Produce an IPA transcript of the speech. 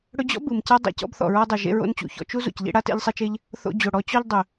ɽɵ˧d͡ʑɔ̰˥ bɯ˩mca˥ dˤḛ˥ cɔ̰˥bθɔ̰˩ɹɔ˥dˤɯ˩ ʒḛ˧ɹo̰˧nt͡ɕṵ˩çɔ̰˧ t͡ʃu˥ zṵ˩cʎḛ˥ɽa˥ tḛ˧ʎsˤe˧t͡ʃe˧ʎ | θo̰˧d͡ʑo˩ ɽɔ˧t͡ɕɔ˥ʎdˤɵ˩

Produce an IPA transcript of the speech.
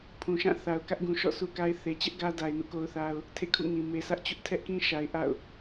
pʰũ˨ʃã˦˨ θa˨ʊ̯kä˦ʔ ɡũ˨ʃɔ̰˦˨ su˦ka˦ɪ̯ θe˨t͡ɕɛ˦ʔ ɡä˦ da˨ɪ̯nṵ˦˨ ko˦ʊ̯θa˦ʊ̯ | tʰḛ˦˨kʰṵ˦˨ŋĩ˨ me˨sä˦ʔt͡ɕʊ˦ʔ tʰɛ˦ʔkĩ˦ʃa˨ɪ̯ ʔa̰˦˨ʊ̯

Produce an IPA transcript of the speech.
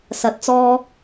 sɐ˨˥t̚t͡sɔː˧

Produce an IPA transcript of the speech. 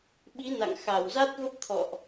ɓi˨˦na̰˧˨ŋxa˧˩w za˦˥t̚və˦˥p̚t̪ʰɔ̰˧˨ʔ

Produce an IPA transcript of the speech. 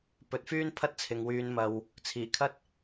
pɵ˨t̚fyː˥n pʰɐ˥t̚t͡sʰɪ˨ŋwyː˨˧n mɐ˨w | t͡sʰiː˨˩kʰɐ˥t̚

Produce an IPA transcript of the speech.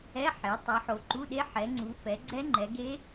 ɛ˧˥˧ħe˨˦ tˤɛ˨˦ħo˨˦ǃu˧˥˧ɗe˦˥ ħɛ˨˦ŋ͡ǀu˨˦fɛ˨˦ ɡ͡ǀɛ˦˥ŋ͡ǃɛ˨˦ɡe˦˥

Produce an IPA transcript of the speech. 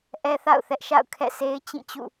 ʔɛ˦θa̰˦˨ʊ̯θɛ˦ʔ ʃa̰˦˨ʊ̯ kʰɛ̰˦˨se˦ɪ̯ t͡ɕĩ˦˨t͡ɕṵ˦˨

